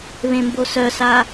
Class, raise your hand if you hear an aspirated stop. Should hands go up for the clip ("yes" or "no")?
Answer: no